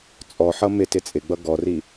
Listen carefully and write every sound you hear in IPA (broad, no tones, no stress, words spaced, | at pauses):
t͡sʼɔħʌ mɪ tɪt͡sʼɪɡ͡bʌ ɡɔri